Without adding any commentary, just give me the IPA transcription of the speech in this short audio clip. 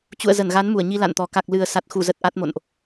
t͡ɕ ṵ˧˨ ə̯ z ə˧˩ n ɣ a˨˦ n m u˧˩ ə̯ ɲ i˧ l a̰˧˨ n t̪ ɔ˨˩ k a˨˩ k̚ l ɨ˨˩ ə̯ s a˨˩ t̚ x u˧˩ z ə˨˩ t̚ ʔ a˦˥ t̚ m o̰˧˨ n ʔ

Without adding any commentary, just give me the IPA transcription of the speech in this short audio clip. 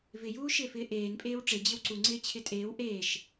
v ɪ j uː ʃ ɪː f ɪː ʔ eː n pʼ eː w ʈ͡ʂ e d͡ʑ ɪ w ǀ u ŋ͡ǀ ɪː t͡ɕʰ ɪ tʼ eː w ʔ eː ʃ

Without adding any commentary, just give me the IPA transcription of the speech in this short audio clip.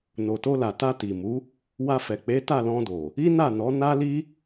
n o˨ t o˧ l a˨ t a˧ t i˨ m u˨˦ | w a˧ f ɛ˨ k͡p e˨˦ t a˦˨ l ɔ̃˧ d o˨ | i˦ n a˦˨ n ɔ˨˦ n a˦ l i˦

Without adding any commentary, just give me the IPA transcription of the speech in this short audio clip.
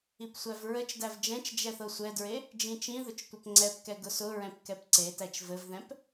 i p sʷ æ v ɹ ə t͡ʃ d æ v d͡ʒ ɛ̃ t͡ʃ d͡ʒ ɛ θ ɤ sʷ ɛ d ɹ e | d͡ʒ ĩ t͡ʃ ĩ ð ʊ t͡ʃ tʷ ɘ p ŋ͡ǀ ɛ p k ɛ ɡ ʊ s ʊ ɹ ɛ̃ p k ɛ p ǀ e t æ t͡ʃ v ɘ v ð ɛ̃ p

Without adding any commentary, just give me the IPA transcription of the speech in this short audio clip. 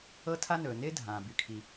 ɤ˥ tʰ a˥ n ɵː˩ n ɪː˥ dʱ ãː˩ b y˩ kʰ i˩

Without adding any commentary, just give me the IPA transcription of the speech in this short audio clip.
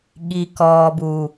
ɠ i˨ k ɔː˨ b u˨

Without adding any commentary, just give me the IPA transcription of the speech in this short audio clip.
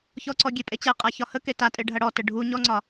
ç ɔ ǀ ɔ ɡʲ e pʼ e t͡ɕ ɛ qʼ a ç ɒ h ə k e t a tʼ e ɖʱ ɐ ɽ ɔ t ə ɖʱ u ɲ ɔ ŋ͡ǀ ɒ

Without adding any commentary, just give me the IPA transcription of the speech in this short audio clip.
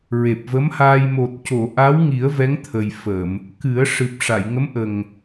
ɹ e˨˩ p̚ v ə˧˥ m h aː˧ j m o˨˩ t̚ c o˨˩˨ ʔ a˧˥ w ŋ i˨˩˦ ə̯ v ɛ˧˥ ŋ t̪ʰ ə˨˩ j f ə˨˩˨ m | k ɨ˨˩˦ ə̯ ʂ ɨ˨˩ p̚ ʂ a˨˩˨ j ŋ ə˧˥ m ʔ ə˨˩ ŋ

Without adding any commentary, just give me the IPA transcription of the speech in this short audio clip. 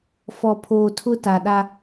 f ɔ˨ pʰ oː˨ tʰ ʊ˦ t a˨ ɗ a˦

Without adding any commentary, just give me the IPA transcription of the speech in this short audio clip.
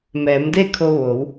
m ɛː˩˧ m d e˥˨ kʰ o˧ ʋ o˩˧ w

